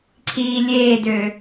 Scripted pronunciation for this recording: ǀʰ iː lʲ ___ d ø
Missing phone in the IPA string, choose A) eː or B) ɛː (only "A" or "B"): A